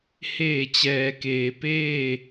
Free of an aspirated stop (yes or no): yes